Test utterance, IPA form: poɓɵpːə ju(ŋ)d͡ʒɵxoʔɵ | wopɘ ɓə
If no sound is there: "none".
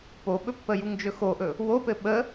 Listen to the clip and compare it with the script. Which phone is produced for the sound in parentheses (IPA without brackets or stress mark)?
ŋ